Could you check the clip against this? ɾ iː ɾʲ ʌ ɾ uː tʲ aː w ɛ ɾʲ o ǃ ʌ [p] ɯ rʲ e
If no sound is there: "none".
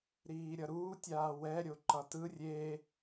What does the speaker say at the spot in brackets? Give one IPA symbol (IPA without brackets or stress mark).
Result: t